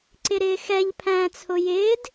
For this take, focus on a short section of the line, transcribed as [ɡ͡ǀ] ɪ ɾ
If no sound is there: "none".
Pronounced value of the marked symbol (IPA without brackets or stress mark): ǀ